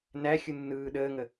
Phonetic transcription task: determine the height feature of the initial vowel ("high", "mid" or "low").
low